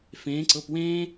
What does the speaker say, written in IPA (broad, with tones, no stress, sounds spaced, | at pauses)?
f ẽː˩˧ ǀ ɤ˩˧˩ p w ẽː˦